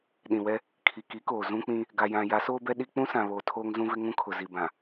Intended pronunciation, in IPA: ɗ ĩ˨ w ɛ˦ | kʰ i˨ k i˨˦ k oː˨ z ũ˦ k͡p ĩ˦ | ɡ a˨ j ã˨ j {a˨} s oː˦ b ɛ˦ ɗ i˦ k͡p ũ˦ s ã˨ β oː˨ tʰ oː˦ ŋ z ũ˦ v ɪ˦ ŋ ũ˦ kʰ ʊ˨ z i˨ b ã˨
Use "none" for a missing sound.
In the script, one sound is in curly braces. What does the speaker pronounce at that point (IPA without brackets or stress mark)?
a˨˦